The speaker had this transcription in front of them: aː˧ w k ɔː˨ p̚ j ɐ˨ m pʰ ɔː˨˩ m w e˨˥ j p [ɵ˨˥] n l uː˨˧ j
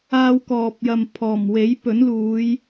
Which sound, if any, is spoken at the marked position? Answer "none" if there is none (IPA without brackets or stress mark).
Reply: ɵ˨˥